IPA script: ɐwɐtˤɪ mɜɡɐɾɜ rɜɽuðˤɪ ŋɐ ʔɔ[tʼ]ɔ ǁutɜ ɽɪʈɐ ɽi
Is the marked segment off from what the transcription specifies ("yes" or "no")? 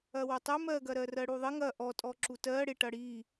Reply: no